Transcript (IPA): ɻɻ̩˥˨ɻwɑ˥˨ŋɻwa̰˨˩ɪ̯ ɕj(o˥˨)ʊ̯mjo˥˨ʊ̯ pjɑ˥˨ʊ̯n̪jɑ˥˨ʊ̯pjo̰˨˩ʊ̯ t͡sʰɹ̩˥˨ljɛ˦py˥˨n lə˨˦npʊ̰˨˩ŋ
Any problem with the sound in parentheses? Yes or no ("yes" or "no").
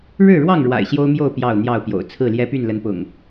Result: yes